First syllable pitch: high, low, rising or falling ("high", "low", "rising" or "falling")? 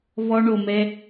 high